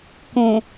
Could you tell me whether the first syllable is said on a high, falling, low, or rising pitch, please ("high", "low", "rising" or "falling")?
low